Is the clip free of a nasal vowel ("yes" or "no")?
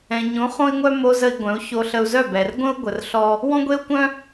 no